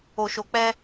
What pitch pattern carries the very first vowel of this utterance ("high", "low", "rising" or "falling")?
low